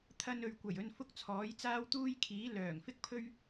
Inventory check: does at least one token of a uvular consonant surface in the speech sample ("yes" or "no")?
no